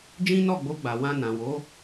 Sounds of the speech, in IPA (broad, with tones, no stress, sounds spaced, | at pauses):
d͡ʒ ĩ˦ n ɔ˦˨ ɡ͡b o˧ ɡ͡b a˨ w ã˧ n ã˨ w o˨˦